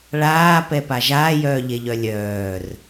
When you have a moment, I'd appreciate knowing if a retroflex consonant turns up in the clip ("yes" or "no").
yes